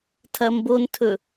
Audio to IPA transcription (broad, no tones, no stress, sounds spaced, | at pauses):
tʰ ɐ m b o n tʰ ɵ